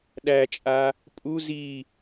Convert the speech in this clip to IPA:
ɗ æ t͡ʃʼ a | pʼ u z i

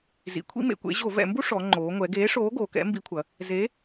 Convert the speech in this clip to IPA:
z ḭ˩˧ kʷʰ ḭ˥ m ḛ˩˧ kʷ ḛ˨˥ ʑ o˧˩˧ v ɛ̰˧˩˧ m b u˥ ʂ ɔ˩˧ ŋ͡ǃ oː˩˧ ŋʷ ɛ˩˧ ɡ eː˨˥ ʂ oː˨˥ ɡ oː˩˧ k ɛ̰˨˥ m b i˨˥ kʷʰ ɐ˩˧ | z e˨˥

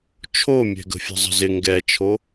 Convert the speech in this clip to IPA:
t͡ʃʰ o mʲ ɛ̤ ɡ ə̤ fʲ ə̤ zˤ ə̤ z ɪ ŋ ɡ ɛ t͡ʃʰ o

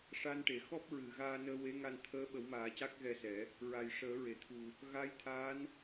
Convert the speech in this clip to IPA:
ʂ a˧ n ʈ e˨˩˨ x ɔ˦˥ p̚ ɹ ɨ˨˩˨ ɣ aː˧ n əː˧ w e˧˥ ŋ a˧ n t̪ʰ əː˧˥ ɓ ə˨˩˦ w m aː˨˩˦ c a˦˥ k̚ ɣ ɛ˧ s ɛ˨˩˦ | ɹ a˨˩ j ʂ əː˨˩˦ ɹ e˨˩˨ t̪ʰ u˨˩ | ɣ a˧˥ j t̪ʰ a˧˥ n

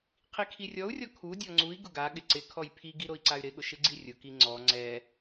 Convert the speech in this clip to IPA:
qʰ i kʰ i rʲ ɔ u̯ rʲ ɔ kʰ u dʲ ɔ ŋ͡ǀ u i̯ ɡ ʊ ɡ a ɠ ɪ ǀ ɪ kʰ ɔ j pʰ i ɡ i ɾ o i̯ ǀ a y̯ ɾ ɪ ɠ ʊ ʃ ɪ ɡ͡ǀ i rʲ ʊ k i ŋ͡ǀ ɔ ŋ͡ǀ ɛ

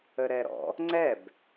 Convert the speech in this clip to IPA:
ə ɾ ɛ ɾ ɔ̰ | ŋ͡ǀ ɛ b

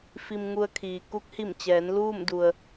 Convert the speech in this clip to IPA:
f i˧ m ŋ u˧ ə̯ kʰ iː˩ k u˧˥ k̚ h i˧˩ m t͡ɕ ɛː˩˧ n l uː˥˨ m d u˩ ə̯

